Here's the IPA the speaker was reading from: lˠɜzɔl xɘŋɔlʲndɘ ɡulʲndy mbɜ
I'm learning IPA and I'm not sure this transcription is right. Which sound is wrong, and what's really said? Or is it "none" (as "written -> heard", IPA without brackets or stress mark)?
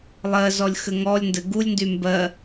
l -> lʲ